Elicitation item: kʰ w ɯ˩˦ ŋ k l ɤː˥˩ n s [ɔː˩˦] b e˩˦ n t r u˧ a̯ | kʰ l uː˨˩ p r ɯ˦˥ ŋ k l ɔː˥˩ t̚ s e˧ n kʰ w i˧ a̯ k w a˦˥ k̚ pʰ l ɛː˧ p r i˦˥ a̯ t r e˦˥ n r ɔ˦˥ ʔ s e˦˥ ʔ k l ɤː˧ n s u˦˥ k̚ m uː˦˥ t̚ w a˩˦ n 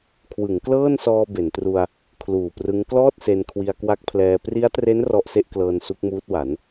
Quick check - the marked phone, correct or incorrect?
incorrect